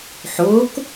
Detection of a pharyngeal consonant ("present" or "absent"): present